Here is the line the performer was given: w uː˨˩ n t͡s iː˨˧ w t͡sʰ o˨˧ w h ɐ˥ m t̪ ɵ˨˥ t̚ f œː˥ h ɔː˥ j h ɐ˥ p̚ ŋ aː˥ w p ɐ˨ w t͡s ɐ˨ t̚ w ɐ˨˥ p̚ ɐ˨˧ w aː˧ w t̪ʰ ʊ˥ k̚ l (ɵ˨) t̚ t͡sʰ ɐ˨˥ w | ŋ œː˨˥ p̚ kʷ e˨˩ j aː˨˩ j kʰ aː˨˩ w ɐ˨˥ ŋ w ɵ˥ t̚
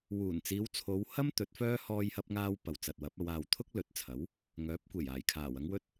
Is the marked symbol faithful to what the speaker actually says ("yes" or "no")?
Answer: no